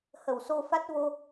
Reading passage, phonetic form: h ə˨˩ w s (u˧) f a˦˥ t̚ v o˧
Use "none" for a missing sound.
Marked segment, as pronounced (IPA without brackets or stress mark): o˧